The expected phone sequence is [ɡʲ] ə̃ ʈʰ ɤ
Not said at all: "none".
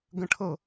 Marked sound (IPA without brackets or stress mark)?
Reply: ɡ